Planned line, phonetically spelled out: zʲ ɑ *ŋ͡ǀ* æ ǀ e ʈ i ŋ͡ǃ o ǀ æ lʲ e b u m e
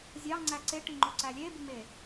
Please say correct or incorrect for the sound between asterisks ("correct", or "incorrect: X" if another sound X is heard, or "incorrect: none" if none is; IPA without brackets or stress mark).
correct